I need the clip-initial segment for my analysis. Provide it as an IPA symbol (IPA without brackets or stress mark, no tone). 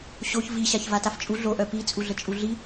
ɕ